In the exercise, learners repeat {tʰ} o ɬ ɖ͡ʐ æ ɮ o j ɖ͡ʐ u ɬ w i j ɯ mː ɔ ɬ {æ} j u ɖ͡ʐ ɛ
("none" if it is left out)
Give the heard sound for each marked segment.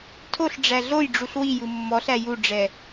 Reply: tʰ, æ

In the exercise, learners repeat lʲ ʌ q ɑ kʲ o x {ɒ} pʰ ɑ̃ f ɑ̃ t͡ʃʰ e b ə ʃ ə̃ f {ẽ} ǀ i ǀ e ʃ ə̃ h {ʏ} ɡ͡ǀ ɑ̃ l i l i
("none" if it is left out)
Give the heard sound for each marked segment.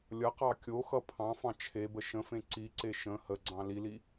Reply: ʌ, ẽ, ə

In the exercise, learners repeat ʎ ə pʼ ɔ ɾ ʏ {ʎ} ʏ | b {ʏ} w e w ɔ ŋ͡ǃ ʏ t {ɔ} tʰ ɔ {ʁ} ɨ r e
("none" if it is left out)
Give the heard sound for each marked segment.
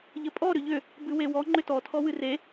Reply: ʎ, ɨ, ɔ, w

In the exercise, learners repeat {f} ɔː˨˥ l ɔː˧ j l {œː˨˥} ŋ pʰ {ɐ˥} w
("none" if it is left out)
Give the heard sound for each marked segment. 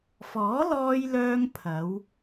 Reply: f, œː˧, ɐ˨˧

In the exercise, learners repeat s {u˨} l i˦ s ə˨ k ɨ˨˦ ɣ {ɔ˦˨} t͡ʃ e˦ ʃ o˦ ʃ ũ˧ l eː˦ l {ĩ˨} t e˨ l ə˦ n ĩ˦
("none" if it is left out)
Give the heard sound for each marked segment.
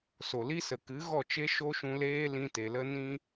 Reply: o˨, ɔ˦˨, ĩ˧

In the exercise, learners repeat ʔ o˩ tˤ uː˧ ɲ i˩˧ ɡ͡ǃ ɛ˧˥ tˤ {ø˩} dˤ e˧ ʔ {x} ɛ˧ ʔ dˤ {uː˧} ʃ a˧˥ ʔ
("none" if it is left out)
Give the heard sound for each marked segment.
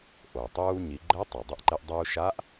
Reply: e˩, ǃ, uː˧

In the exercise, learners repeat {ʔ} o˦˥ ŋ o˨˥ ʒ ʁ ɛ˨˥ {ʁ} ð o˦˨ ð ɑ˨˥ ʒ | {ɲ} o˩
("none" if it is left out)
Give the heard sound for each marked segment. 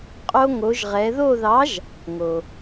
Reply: qʼ, none, ŋ

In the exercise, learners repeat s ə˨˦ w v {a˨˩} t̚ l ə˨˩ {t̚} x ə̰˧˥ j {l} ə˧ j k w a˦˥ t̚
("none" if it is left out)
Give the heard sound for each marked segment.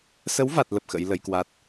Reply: a˨˩, p̚, l

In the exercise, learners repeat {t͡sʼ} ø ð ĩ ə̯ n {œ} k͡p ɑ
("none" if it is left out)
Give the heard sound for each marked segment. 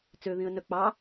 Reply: t͡s, œ

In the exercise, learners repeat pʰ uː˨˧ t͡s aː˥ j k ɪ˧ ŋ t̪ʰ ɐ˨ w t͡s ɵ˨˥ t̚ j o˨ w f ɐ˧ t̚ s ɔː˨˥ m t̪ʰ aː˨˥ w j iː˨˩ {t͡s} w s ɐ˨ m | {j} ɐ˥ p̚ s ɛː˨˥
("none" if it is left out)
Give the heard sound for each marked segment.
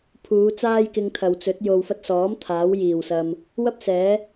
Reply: none, w

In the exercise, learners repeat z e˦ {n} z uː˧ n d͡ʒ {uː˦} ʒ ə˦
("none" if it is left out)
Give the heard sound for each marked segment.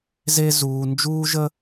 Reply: none, uː˦

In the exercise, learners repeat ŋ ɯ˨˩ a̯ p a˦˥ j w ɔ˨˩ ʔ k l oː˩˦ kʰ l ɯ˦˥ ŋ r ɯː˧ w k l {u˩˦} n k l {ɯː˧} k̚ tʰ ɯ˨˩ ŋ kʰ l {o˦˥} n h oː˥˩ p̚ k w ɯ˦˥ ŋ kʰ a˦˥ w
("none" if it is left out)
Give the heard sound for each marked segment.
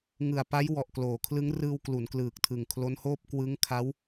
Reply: u˩˦, ɯː˨˩, o˦˥

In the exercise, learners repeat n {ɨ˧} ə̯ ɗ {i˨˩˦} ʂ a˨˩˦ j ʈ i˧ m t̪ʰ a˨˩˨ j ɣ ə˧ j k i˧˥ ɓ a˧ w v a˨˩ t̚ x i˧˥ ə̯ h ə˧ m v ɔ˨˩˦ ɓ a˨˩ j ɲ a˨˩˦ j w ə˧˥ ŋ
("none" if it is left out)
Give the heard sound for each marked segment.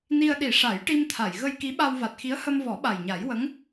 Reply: i˧, i˨˩˦

